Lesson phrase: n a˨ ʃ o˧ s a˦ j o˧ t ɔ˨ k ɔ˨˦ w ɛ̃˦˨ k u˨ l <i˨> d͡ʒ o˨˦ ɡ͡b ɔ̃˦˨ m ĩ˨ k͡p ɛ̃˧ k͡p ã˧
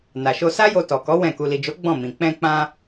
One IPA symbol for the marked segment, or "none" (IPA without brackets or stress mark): i˨